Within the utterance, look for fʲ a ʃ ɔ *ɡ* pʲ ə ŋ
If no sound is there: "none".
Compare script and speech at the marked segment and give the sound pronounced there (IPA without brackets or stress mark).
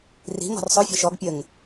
ɡ